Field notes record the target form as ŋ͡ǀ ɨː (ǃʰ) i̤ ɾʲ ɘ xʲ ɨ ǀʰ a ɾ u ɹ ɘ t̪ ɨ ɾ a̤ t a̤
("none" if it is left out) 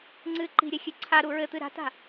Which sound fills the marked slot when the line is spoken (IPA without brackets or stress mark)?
ǃ